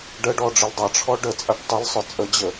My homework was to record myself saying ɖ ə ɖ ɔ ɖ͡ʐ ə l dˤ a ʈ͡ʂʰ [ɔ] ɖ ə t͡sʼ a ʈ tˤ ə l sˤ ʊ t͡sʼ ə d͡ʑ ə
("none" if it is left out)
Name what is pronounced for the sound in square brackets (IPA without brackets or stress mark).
ɔ